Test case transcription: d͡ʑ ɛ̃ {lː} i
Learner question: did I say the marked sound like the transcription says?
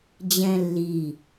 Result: yes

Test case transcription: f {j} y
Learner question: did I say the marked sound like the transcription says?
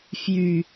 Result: yes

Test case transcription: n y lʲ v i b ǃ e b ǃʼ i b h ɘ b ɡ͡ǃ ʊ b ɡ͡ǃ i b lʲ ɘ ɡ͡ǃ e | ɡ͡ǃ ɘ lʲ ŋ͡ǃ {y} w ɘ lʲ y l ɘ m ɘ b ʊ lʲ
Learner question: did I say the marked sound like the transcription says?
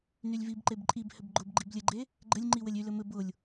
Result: no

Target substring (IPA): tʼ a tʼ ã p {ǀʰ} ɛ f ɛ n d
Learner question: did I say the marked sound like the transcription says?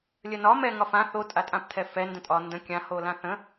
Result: no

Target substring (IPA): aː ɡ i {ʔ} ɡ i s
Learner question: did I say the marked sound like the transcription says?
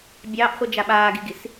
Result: no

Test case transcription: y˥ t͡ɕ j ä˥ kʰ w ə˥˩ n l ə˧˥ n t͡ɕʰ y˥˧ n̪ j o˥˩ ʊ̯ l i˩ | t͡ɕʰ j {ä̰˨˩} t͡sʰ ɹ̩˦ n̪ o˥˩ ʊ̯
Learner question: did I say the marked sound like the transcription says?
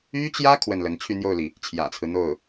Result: yes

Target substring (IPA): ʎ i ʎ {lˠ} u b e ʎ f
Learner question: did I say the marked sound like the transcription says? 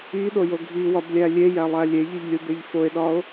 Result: no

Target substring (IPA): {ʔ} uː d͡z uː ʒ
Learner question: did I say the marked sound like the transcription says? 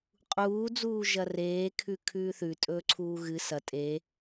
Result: no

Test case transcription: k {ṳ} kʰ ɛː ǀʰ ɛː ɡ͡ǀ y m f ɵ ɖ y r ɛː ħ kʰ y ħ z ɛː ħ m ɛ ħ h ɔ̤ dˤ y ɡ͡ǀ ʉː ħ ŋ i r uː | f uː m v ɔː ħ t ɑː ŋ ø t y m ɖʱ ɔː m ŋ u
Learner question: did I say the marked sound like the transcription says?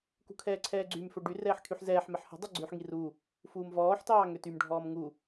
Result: yes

